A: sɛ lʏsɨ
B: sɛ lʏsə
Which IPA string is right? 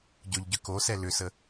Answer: B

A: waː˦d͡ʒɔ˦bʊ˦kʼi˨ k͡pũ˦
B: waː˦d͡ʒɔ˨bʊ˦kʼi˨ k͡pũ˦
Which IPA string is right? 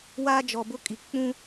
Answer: B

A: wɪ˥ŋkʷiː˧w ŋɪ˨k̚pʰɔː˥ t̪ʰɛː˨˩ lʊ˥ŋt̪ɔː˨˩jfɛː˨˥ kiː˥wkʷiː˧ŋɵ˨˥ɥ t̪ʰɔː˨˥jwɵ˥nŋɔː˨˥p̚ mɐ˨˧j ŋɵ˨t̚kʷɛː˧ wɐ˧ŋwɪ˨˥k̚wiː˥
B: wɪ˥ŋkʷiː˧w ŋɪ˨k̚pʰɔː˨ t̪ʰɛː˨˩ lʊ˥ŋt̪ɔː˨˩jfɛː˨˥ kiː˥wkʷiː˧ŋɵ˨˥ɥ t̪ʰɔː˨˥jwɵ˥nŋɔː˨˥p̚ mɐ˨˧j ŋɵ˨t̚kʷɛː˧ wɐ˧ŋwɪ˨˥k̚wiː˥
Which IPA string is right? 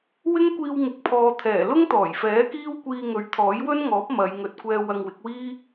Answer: B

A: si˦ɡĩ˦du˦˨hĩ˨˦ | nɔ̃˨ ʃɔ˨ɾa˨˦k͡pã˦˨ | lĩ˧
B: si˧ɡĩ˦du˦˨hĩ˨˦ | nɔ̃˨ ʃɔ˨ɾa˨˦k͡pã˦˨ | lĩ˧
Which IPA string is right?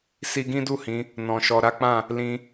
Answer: B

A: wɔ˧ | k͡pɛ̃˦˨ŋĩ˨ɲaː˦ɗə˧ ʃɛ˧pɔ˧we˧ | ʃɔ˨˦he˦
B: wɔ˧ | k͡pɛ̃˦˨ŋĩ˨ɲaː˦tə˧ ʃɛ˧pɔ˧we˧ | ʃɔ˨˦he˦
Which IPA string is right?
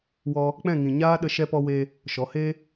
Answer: A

